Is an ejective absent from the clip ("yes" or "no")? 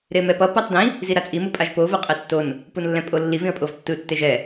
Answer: no